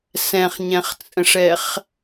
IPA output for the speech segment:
s ɛ̃ χ ɲ ɛ̃ χ t͡sʼ ə̃ ʂ ɛ χ

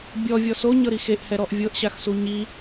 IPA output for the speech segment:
bʲ ɔ vʲ ɔ s o ɲ ɤ ɾ i x e ʔ h ɛ ɾ ɔ ʔ vʲ ɤ ʔ ɕ a x s u ɲ i

